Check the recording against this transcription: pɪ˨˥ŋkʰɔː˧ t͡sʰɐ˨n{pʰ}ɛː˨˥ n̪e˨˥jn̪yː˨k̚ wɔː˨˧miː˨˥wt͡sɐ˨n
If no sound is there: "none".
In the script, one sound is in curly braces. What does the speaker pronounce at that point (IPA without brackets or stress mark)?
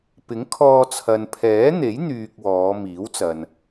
pʰ